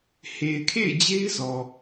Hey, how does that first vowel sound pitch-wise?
low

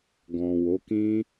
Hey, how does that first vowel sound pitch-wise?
low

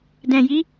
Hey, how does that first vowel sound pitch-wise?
low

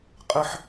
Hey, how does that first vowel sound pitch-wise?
high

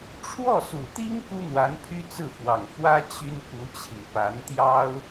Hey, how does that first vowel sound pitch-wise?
falling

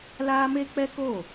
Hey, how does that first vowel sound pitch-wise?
high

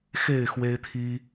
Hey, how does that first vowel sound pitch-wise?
falling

